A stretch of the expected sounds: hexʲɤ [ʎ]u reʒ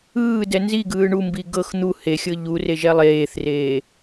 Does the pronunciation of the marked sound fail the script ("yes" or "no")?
no